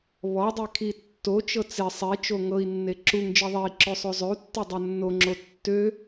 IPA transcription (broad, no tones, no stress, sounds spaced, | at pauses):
β ɔ dˤ e kʰ i tː o t͡ʃ ɤ t͡s e sˤ e t͡ʃ o ŋ ɤ i̯ nː e ǁ u ŋ d͡ʒ i ðˤ e i̯ ǁ ø sˤ o zˤ ø u̯ tː e dˤ o nː o ŋ͡ǁ o tː ø